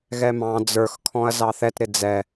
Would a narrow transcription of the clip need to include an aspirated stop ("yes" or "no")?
yes